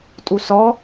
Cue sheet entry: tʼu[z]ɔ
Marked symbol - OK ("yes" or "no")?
no